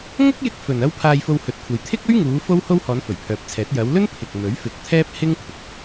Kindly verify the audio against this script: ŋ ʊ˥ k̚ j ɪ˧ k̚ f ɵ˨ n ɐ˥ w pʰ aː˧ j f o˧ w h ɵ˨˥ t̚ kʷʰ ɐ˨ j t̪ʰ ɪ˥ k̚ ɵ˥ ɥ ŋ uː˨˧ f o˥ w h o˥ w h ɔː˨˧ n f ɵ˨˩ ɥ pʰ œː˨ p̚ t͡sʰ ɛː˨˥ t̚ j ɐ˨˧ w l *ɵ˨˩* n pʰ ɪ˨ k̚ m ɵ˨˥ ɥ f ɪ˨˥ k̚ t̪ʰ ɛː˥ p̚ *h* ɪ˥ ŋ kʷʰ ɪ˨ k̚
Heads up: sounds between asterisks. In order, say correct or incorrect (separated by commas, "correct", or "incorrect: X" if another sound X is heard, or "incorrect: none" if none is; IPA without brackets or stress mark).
incorrect: ɵ˥, correct